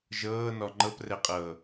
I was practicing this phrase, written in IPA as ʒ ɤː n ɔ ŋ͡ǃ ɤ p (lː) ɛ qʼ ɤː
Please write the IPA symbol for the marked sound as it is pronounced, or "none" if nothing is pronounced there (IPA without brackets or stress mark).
r